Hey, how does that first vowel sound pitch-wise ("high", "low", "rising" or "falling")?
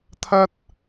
high